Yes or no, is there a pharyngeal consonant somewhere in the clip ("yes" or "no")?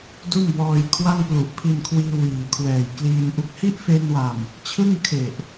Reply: no